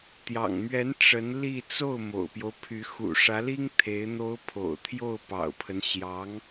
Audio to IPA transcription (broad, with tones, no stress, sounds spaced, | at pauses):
t̪ j ɑ̰˨˩ ŋ m ɥ ɛ˧˥ n ʈ͡ʂ ə˧˥ n l i˥˧ t͡s o˥˩ ʊ̯ m o̰˨˩ ʊ̯ p j o˦ ʊ̯ pʰ y˧˥ x ṵ˨˩ ʂ ä˧˥ l i˥ ŋ t̪ʰ e˧˥ ɪ̯ n̪ o˧˥ ʊ̯ pʰ o̰˨˩ ʊ̯ t̪ʰ j o˥˩ ʊ̯ p ɑ̰˨˩ ʊ̯ pʰ ə˦ n ɕ j ɑ˧˥ ŋ